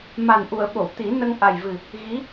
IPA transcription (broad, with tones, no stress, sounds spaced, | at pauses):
m a˨˩ n ʔ u˨˩˨ ə̯ ɓ o˨˩˨ w t̪ i˨˩˦ n ə˧ ŋ ʔ a˨˩ j v ɨ˨˩ | ɣ i˧˥